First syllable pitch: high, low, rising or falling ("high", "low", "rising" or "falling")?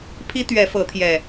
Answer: high